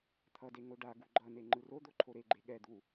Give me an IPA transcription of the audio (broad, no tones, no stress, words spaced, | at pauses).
t̪ʰʌde ŋoɖaɡu ɡ͡ǃʌne ŋ͡ǃɯrod̪o ǃʰoɾeɡ͡ǃe ɠɛd̪u